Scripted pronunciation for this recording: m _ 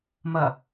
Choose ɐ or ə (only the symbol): ɐ